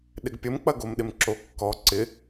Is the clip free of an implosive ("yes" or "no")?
no